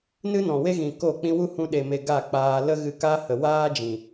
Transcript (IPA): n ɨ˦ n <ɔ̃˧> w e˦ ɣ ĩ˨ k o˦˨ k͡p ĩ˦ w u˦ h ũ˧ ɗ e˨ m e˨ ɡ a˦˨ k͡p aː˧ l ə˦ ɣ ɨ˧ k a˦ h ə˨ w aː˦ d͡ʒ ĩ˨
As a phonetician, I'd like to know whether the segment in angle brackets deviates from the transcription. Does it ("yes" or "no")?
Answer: yes